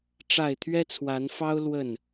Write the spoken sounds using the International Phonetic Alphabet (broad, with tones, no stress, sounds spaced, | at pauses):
ʈ͡ʂ a˥˨ ɪ̯ t̪ʰ ɥ ɛ˦ t͡sʰ w a˨˦ n f ɑ˦ ʊ̯ l w ə˥˨ n